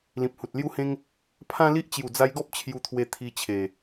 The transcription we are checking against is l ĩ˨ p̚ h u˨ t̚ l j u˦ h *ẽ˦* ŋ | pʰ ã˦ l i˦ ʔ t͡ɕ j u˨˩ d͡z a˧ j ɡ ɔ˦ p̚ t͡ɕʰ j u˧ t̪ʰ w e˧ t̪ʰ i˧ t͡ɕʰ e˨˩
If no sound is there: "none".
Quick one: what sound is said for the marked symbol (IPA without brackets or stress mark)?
ẽ˦